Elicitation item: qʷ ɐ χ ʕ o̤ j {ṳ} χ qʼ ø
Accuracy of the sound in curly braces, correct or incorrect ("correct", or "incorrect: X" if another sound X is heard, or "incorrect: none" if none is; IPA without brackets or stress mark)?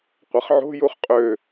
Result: incorrect: u